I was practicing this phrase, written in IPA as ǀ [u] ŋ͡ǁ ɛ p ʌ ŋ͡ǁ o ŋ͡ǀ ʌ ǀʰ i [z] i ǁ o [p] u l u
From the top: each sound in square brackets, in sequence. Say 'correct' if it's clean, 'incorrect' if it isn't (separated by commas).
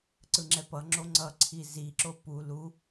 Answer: incorrect, correct, correct